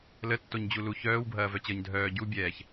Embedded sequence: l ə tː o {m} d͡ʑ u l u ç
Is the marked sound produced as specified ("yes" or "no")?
no